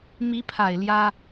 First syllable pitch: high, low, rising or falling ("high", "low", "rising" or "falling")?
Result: rising